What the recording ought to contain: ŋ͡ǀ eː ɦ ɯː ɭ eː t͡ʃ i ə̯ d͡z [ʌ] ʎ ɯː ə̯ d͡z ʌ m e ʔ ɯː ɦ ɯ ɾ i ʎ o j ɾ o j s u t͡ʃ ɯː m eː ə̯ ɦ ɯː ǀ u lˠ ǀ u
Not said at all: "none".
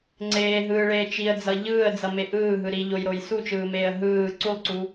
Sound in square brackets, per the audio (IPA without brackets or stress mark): ʌ